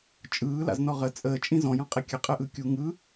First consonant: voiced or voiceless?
voiceless